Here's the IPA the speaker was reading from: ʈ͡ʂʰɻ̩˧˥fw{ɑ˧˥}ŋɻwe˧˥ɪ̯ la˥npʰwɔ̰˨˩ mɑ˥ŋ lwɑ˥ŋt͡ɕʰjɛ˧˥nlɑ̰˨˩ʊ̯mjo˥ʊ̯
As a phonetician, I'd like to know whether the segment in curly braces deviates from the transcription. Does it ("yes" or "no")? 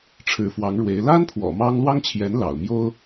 no